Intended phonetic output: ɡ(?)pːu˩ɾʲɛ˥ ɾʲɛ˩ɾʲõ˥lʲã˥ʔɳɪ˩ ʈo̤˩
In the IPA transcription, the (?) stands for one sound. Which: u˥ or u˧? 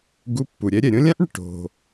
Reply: u˧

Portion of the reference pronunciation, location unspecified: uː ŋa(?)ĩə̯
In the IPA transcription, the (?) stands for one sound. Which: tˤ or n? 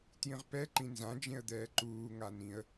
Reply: n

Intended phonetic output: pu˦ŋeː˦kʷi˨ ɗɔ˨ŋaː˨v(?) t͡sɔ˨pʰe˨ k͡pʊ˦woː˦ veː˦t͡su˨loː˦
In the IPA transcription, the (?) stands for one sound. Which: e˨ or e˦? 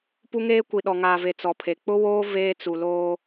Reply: e˨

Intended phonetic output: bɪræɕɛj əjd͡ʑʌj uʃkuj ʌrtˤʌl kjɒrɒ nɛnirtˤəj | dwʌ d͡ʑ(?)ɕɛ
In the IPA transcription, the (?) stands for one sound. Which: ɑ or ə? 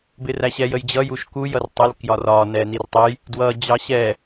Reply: ɑ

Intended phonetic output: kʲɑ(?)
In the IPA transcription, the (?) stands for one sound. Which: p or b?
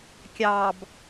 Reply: b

